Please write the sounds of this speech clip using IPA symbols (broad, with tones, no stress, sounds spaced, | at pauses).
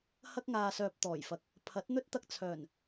h ɐ˧ k̚ ŋ aː˨ s œː˨ p̚ t̪ ɔː˨˩ j f ɐ˨ k̚ | pʰ ɐ˨˥ t̚ n̪ ɵ˥ t̚ t̪ ɐ˧ k̚ t͡sʰ œː˨˩ n